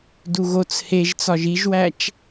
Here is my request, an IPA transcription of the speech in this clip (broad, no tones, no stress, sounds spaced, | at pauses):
d u ɣ o t͡s h e ʒ t͡s ɒ ʒ i ʒ w æ t͡ʃ